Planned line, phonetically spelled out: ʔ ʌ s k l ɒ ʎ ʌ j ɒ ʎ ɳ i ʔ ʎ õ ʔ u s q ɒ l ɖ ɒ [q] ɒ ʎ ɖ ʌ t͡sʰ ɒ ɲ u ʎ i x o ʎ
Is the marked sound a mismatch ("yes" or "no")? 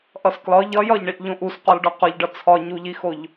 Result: no